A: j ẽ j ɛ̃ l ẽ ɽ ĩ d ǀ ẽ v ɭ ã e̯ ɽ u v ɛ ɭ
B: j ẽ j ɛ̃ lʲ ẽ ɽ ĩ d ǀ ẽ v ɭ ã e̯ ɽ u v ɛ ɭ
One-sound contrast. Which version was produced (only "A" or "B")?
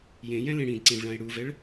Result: A